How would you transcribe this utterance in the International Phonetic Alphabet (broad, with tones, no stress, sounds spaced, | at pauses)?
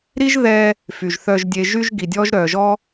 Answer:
ɾ i˦ ʒ ð ɛ˧ | f y˨ ʒ θ œ˧ ʒ dʲ e˧ ʒ y˦ ʒ ɡ i˨ dʲ ɔ˦ ʒ ɾ œ˨ ʒ ɔ˦